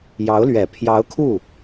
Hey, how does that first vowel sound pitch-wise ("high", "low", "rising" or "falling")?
rising